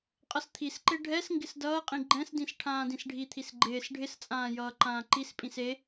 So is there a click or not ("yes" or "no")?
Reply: yes